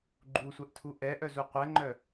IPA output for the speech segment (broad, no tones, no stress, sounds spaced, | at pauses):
ɡ͡ǃ u sʷ ɛ ʔ tʰ u ʔ ɛ ʔ œ z u qʷ ɛ ŋ͡ǃ œ